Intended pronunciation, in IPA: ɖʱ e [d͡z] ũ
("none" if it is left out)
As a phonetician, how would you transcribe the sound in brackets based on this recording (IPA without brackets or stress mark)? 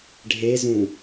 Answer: z